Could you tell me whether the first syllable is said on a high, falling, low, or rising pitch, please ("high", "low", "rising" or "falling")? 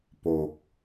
low